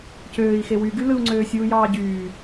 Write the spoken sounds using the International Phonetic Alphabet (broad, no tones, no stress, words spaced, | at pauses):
cøːi̯xe wyɡy lɯu̯ŋ͡ǀøːsʲuːjɑː ɟyː